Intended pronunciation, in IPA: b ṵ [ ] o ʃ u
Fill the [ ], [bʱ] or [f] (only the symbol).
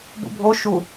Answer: bʱ